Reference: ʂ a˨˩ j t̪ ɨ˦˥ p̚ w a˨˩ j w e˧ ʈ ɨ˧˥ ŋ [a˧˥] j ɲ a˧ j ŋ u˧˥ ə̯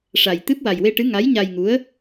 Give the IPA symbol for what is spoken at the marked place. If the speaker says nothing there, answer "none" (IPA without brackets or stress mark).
a˧˥